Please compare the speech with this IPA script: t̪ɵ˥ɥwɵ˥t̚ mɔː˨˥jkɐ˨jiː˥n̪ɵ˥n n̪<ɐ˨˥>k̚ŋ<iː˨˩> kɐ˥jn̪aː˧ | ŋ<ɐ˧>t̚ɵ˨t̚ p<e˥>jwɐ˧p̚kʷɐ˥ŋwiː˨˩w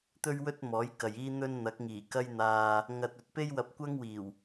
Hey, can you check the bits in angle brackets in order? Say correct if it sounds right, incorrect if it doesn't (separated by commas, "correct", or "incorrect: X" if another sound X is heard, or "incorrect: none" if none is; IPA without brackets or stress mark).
correct, correct, correct, correct